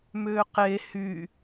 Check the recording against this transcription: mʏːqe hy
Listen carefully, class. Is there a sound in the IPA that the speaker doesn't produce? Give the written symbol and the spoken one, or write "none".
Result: none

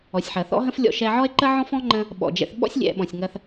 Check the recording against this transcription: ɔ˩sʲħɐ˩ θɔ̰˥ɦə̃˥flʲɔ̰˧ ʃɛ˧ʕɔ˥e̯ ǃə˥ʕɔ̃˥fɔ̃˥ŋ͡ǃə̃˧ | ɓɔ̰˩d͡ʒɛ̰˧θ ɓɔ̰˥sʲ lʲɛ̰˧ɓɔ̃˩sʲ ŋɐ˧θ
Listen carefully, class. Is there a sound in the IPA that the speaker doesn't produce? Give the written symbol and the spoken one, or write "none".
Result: none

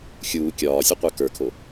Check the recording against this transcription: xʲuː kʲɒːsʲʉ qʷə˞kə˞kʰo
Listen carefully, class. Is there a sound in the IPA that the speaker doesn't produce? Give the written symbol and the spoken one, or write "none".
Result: none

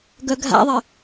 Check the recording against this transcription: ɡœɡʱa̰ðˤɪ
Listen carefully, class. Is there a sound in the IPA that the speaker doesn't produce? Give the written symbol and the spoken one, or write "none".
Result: none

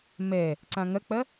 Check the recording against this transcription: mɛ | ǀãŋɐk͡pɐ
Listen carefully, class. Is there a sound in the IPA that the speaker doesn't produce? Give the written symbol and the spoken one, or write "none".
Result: none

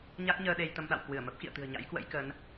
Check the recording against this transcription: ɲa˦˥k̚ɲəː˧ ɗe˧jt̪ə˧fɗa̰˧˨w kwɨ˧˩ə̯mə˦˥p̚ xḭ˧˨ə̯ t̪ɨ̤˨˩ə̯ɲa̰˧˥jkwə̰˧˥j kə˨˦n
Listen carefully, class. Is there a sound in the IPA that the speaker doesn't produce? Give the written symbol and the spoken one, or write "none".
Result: f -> m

